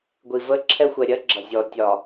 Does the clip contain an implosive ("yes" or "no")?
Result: no